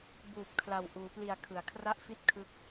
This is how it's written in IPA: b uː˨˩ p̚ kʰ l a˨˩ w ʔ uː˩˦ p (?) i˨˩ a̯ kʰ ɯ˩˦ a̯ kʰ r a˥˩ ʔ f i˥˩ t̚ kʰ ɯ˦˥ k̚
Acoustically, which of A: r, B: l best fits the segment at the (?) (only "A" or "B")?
B